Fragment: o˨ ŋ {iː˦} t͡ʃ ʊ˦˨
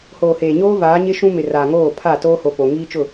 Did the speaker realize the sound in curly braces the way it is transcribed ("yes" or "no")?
yes